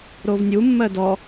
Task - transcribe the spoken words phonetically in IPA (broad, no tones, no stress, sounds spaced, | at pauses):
ɾ o v nʲ u mː ɜ d ɔ